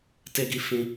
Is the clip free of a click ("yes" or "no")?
yes